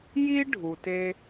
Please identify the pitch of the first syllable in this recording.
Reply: high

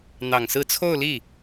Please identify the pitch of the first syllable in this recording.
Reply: low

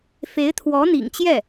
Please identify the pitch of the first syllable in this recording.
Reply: rising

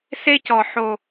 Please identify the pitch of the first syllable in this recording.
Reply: high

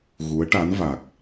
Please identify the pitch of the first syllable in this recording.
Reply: rising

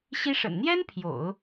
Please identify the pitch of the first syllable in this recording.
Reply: high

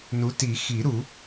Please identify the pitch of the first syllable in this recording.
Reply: rising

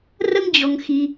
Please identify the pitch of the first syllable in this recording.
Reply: high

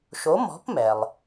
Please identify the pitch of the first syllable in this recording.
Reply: rising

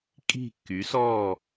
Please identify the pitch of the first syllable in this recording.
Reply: falling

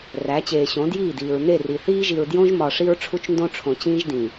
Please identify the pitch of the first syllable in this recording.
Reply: rising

